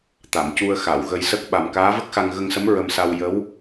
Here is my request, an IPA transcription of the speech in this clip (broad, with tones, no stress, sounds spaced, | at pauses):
t̪ a˨˩˨ m c u˧ ə̯ x a˨˩˨ w ɣ ə˧ j s ə˦˥ k̚ ɓ a˨˩ m k aː˧˥ v ə˦˥ k̚ x a˧ ŋ ɣ ə˧ ŋ s ə˧˥ m ɹ ə˧ m s a˧ w j ə˧˥ w